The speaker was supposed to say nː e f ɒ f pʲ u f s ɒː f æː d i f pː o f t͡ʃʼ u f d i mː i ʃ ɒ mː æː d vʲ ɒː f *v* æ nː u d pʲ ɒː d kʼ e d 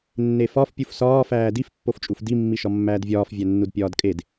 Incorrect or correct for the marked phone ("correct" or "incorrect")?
incorrect